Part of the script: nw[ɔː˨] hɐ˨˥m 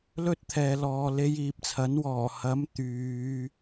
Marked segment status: incorrect: ɔː˨˩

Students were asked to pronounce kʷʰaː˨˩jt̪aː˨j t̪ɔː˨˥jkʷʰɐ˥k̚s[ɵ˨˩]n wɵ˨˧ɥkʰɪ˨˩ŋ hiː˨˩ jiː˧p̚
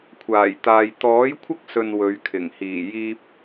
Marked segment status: incorrect: ɵ˨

